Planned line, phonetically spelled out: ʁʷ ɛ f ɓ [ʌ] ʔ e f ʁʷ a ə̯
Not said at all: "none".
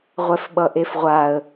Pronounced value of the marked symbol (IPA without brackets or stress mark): ʌ